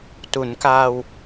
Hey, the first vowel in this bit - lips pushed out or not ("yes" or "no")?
yes